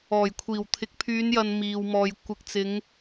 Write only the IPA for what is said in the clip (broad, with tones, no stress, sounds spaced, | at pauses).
ɔː˨˩ j kʷʰ iː˨˩ w t̪ʰ ɪ˨˥ k̚ pʰ yː˨˧ n j ɐ˨ n m iː˨ w m ɔː˨ j kʷ ɪ˨ k̚ t͡s ɪ˨˧ ŋ